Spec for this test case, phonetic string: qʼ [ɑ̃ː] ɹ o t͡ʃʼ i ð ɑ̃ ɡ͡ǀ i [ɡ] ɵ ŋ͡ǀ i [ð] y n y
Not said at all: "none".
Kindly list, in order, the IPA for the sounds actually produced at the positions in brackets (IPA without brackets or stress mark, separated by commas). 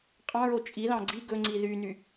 ɑ̃, ɡ, ð